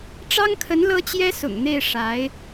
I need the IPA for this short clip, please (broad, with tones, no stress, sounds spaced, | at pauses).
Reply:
ʈ͡ʂ ɑ˥ ŋ kʰ ə˧˥ n l ɤ˥ t͡ɕ j ɛ˥ s ʊ̰˨˩ ŋ n̪ e˥˩ ɪ̯ ʂ a˧˥ ɪ̯